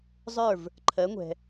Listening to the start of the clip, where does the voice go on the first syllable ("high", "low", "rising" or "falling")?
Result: falling